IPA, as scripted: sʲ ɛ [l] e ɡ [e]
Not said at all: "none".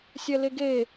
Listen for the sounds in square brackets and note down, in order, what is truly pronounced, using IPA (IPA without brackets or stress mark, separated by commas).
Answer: l, e